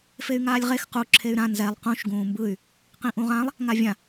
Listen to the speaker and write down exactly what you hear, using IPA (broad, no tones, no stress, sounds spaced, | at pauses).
f e y̯ ŋ aː lʲ ʁ e x q u ǁʰ e y̯ ɾ ã n z ɛ lˠ q ũ ʃ ɡ ũː m b ɯ y̯ | q ĩ ʔ ũ ʁ ã lˠ | ŋ a vʲ ã